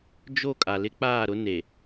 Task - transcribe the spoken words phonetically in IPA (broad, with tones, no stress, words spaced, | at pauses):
d͡ʒo˦˨ kʼa˨lɪ˦k͡paː˦˨ɾʊ˦ ne˨